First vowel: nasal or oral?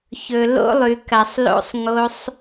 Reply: oral